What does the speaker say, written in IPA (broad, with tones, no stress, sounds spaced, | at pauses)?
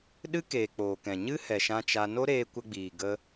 ɗ ɨ˦ k eː˨ k͡p oː˨ k ɛ̃˨ ɲ ɨ˦ h ɛ˨ ʃ ã˧ t͡ʃ a˧ n o˦ ɾ eː˧ kʷ ə˧ ɡ͡b iː˨ ɡ ə˧